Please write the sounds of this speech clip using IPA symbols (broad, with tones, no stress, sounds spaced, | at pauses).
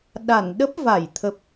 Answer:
ɗ a˧˩ n ɗ ə˦˥ p̚ v a˧˩ j t̪ʰ ə˨˩ p̚